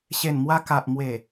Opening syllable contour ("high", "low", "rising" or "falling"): low